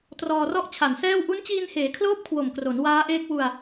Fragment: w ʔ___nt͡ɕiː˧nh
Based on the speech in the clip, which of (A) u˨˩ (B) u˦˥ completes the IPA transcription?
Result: B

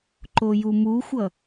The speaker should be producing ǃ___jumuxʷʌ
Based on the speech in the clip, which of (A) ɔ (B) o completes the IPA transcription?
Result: B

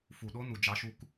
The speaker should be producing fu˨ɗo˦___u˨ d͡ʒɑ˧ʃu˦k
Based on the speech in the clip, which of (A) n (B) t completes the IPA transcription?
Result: A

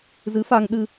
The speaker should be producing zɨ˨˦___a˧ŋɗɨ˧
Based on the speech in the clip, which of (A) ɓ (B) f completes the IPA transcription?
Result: B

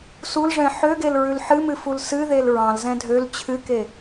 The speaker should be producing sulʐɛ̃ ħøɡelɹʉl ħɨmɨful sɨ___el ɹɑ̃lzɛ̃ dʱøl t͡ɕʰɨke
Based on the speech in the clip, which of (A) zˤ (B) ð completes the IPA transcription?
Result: B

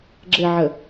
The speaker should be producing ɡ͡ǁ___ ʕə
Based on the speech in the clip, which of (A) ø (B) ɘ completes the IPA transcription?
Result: B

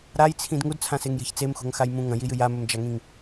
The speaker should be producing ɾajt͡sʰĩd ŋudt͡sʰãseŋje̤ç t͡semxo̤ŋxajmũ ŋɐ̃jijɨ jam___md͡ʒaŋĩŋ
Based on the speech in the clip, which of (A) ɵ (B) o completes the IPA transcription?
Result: A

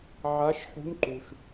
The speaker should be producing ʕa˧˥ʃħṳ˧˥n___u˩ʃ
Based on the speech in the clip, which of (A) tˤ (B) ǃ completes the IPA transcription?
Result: B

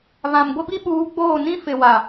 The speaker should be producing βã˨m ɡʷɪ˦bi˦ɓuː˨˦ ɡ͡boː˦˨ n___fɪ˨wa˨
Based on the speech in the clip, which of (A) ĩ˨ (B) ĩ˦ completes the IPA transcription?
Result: B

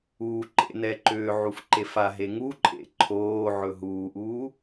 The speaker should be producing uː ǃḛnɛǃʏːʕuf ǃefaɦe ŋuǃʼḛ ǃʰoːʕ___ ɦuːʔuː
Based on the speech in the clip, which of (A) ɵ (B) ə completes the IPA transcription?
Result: A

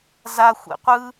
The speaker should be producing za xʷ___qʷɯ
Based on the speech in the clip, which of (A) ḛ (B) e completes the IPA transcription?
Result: A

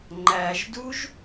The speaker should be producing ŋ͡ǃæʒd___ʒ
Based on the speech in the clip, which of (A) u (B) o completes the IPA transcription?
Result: A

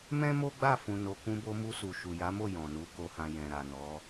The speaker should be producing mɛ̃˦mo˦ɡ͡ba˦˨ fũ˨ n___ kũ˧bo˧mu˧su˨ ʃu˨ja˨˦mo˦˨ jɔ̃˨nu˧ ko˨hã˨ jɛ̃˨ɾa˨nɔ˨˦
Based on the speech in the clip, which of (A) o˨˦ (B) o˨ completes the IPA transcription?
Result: A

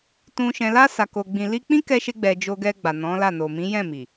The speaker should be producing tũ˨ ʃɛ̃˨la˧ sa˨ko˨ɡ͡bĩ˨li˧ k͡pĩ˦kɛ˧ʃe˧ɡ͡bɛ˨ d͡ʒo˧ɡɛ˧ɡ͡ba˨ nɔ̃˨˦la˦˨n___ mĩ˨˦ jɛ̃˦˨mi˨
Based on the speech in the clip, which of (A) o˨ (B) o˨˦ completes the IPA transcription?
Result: A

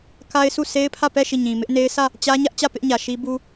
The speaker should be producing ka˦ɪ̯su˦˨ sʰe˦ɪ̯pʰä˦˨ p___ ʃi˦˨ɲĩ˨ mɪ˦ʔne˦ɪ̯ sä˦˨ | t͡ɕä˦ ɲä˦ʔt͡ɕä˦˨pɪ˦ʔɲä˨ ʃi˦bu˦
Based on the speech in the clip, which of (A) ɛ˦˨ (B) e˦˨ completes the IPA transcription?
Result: A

